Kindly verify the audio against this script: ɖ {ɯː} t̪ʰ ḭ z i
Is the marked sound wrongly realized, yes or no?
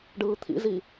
no